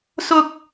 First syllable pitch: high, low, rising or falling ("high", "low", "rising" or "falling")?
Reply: high